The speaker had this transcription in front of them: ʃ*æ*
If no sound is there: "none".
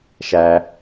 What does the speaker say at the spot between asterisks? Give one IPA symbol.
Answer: æ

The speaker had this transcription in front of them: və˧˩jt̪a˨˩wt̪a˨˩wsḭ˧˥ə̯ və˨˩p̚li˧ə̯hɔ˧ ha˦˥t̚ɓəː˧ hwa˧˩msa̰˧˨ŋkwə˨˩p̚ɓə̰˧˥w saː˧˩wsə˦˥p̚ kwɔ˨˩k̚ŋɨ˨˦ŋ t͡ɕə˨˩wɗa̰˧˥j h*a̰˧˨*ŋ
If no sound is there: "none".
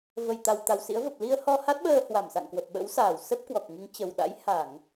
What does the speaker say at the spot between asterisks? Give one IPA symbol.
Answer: a˧˩˨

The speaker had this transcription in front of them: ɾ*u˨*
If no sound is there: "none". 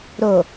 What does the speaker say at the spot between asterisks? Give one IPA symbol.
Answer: o˨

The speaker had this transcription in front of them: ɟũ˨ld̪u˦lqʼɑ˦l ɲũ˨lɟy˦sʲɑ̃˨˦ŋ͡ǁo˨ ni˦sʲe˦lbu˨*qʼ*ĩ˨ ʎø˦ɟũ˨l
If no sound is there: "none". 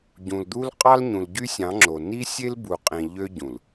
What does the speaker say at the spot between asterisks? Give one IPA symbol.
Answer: qʼ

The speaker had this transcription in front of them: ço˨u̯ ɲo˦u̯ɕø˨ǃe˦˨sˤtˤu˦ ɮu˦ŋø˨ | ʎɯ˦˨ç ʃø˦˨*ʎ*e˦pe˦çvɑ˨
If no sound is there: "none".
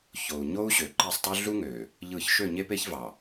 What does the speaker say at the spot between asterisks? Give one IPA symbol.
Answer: ɲ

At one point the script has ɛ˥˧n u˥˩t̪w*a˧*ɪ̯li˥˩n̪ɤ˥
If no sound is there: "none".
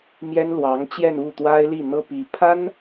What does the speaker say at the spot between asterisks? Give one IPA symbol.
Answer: a˥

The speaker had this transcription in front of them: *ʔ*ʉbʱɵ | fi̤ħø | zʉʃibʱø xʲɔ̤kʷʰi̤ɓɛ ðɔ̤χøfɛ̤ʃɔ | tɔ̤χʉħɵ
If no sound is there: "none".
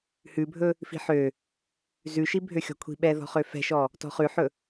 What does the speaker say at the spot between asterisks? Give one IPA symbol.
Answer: h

